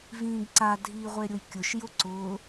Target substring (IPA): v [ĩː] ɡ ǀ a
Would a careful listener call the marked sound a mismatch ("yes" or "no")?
no